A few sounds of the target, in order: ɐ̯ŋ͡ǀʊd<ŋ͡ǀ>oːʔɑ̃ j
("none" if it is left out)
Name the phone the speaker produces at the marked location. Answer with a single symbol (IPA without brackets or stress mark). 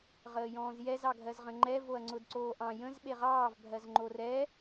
ǀ